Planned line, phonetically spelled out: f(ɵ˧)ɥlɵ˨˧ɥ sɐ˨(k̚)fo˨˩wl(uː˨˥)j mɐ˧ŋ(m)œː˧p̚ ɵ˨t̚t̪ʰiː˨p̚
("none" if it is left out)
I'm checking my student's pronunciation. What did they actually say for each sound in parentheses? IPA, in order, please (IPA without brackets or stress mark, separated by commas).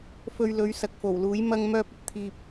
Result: ɵ˧, k̚, uː˨˥, m